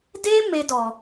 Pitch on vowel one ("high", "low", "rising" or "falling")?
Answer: high